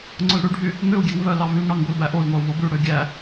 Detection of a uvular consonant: absent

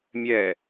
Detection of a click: absent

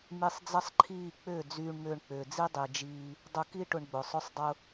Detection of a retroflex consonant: present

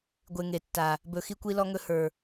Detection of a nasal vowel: absent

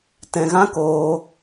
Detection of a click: absent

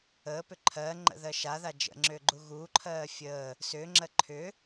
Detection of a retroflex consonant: absent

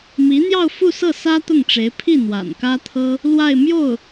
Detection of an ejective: absent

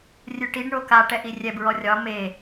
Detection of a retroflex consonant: present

